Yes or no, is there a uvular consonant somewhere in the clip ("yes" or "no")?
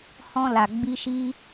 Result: no